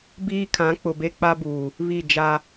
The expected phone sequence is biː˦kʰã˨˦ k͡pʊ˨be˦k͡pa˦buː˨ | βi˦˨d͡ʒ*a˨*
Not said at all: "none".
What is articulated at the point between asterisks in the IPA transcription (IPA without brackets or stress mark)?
a˦